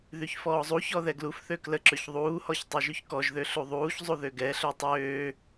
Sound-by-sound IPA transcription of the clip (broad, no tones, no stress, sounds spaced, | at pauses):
ð y ç f ɔː zˤ u ç ɔ ð ɛ ɡ l u f θ ø k l ə ǁ ø ç ðˤ uː h ɔ ç tˤ ø ʒ y ç k ɔ ʒ ð ø ɬ u ðˤ uː ç zˤ u ð ø ɡ ɛ ɬ ø tˤ øː